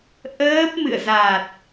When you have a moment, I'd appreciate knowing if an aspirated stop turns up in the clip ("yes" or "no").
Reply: no